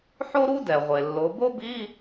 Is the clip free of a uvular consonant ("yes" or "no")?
no